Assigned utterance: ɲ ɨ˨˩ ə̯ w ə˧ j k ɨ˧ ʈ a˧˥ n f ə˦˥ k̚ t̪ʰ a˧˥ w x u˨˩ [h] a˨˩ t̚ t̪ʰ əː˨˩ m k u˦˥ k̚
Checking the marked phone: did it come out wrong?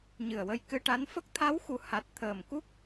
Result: no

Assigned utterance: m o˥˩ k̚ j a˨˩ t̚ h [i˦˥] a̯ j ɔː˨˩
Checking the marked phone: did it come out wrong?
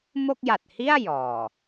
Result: yes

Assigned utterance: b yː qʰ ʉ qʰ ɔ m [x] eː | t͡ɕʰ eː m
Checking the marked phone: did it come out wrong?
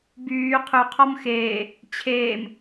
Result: no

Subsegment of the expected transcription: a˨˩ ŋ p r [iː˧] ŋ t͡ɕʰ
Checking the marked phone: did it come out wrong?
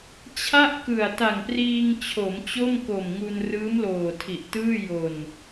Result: no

